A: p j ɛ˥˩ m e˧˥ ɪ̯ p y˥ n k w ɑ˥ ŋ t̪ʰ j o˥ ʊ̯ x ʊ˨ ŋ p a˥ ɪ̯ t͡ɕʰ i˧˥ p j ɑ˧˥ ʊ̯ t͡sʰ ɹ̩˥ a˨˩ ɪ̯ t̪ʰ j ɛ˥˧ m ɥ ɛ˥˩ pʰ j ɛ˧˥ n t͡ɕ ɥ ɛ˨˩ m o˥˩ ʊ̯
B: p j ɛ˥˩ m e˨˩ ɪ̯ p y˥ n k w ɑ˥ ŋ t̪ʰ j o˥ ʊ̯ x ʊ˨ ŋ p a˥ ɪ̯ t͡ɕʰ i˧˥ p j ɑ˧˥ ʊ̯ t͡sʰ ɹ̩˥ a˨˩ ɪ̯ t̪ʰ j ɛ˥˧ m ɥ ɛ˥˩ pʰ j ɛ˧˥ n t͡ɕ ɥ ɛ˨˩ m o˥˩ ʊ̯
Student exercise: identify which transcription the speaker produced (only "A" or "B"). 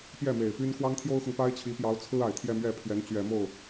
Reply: B